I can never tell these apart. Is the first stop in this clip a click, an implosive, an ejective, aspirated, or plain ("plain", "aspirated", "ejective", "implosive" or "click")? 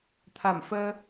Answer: aspirated